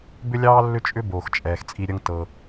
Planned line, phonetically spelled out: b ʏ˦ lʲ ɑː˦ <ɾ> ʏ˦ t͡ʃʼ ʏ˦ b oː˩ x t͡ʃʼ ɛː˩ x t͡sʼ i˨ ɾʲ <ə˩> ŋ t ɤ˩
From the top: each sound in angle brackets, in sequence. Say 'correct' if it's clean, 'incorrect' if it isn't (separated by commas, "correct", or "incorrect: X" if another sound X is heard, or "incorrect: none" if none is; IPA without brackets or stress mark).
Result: incorrect: lː, incorrect: ə˨